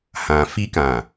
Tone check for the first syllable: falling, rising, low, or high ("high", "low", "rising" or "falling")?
low